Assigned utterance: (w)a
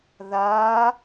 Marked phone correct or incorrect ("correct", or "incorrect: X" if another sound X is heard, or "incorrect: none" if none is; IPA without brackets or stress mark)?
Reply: incorrect: ð